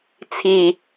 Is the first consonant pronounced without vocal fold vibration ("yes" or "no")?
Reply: yes